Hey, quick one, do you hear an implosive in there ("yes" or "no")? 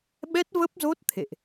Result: yes